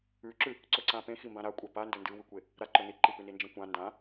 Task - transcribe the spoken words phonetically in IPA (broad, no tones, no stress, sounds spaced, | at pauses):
ʉ ǁ ʉ | ǀ ɵ ǀ ã p ẽ x i m b ã ɾ a kʷʼ a p a n d ɵ n d ɨ w ʉ kʷ e | ɾ a ǃ ɵ n i ǃ i p ʉ n i n d͡ʒ ẽ kʷ ã n d ã